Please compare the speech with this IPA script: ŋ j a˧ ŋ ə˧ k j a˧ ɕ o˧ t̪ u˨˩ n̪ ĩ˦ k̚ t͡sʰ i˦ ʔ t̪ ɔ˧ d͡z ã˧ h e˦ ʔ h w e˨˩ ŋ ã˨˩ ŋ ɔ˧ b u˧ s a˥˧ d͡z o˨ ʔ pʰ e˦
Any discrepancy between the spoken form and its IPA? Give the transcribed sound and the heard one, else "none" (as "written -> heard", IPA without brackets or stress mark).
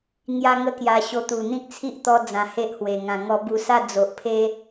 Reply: none